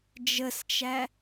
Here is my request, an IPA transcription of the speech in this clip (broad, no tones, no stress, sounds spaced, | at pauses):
d͡ʒ ə s t͡ʃ æ